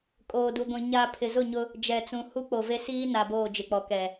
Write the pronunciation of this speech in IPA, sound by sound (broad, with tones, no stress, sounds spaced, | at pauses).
kʼ oː˨ d u˨ ɡʷ ĩ˨ ɲ a˨ pʰ ɪ˨ z ʊ˦˨ ɲ ʊ˦ | d͡ʒ ɛ˨ t͡s ũ˨ h u˦ k͡p o˨ v e˦ s iː˦ n a˨ b oː˦˨ d͡ʒ ɪ˨ k͡p ɔ˨ k ɛ˨